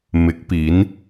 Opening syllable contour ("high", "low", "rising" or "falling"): rising